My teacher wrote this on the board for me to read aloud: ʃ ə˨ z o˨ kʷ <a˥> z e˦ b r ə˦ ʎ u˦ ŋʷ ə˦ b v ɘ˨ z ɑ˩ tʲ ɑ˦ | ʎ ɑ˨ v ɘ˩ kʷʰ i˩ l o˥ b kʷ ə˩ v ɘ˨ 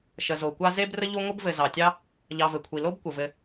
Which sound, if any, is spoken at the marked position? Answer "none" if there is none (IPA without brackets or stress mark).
a˥